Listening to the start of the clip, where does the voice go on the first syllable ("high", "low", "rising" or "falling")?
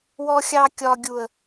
high